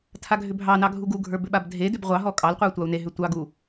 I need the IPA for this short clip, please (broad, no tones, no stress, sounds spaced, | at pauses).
tʰ a ɡʱ ʏ bʱ ɑ n ɑ ɡʱ u ɡ u ɡʱ ə˞ b ʏ ɓ a b dʱ e d ʏ b ʁʷ ɑ ɦ ɔ kʼ ɑ l qʷ ə˞ tʷ ɑ u̯ n e ɦ ʏ tʷ ɑ ɡ u